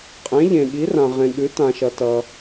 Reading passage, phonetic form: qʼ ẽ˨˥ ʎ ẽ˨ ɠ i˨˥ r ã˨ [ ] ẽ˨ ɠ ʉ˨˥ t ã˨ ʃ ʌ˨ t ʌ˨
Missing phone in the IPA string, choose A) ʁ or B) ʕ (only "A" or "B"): A